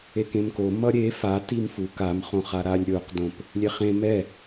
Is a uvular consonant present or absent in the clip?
present